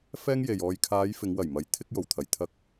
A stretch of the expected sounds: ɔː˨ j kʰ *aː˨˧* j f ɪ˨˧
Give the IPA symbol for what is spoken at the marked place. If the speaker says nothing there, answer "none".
aː˨˧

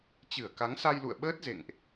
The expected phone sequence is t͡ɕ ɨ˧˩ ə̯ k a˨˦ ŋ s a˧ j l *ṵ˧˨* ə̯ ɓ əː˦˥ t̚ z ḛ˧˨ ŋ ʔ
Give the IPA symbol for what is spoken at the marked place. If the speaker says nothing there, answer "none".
ṵ˧˨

